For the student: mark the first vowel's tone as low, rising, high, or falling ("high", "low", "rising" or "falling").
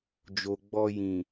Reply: low